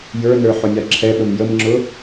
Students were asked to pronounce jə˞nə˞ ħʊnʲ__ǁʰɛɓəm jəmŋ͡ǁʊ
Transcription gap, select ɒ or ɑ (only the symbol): ɑ